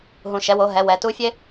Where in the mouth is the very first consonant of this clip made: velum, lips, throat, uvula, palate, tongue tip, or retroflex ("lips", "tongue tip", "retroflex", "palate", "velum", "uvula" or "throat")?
throat